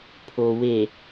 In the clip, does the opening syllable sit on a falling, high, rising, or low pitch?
low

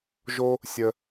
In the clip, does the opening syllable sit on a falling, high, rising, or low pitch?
high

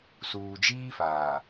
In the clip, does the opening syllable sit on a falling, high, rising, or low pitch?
low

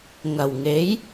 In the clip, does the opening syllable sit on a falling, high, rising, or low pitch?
low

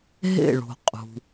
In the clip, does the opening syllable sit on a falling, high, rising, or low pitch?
falling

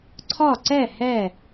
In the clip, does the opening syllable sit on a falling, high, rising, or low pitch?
falling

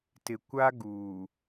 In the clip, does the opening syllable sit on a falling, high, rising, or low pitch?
low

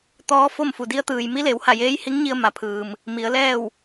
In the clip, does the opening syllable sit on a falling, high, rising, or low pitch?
rising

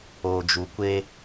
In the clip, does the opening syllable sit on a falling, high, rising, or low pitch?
low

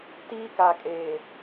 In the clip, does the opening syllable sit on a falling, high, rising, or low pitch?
high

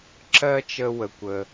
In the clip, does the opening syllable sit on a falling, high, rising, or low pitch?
high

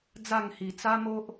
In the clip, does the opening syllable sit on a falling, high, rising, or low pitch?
falling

